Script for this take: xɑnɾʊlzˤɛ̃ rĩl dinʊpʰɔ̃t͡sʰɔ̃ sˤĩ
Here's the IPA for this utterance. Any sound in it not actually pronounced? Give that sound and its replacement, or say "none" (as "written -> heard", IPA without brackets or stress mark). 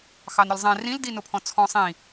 none